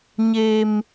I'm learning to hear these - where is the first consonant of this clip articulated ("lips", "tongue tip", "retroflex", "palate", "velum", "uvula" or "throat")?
palate